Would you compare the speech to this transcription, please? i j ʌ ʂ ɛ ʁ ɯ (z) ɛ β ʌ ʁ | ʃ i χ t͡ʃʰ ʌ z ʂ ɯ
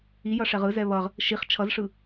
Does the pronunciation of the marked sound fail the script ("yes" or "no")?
no